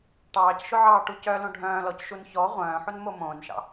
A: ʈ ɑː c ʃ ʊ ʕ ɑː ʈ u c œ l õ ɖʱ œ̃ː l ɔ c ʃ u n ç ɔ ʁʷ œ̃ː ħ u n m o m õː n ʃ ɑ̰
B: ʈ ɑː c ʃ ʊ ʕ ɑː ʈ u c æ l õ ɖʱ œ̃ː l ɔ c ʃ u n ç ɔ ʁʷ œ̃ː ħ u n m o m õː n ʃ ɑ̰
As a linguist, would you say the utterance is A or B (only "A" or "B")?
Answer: A